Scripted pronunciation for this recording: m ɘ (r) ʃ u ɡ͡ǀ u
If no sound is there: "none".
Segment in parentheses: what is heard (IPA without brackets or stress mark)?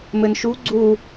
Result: n